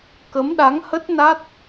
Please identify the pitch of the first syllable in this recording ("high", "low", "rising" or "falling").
rising